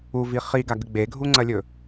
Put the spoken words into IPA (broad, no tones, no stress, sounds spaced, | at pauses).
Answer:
u v i χ i ɡ a ɡ ɨ ɡ͡b e ɡʱ u ŋ͡ǀ ɐ lʲ ɵ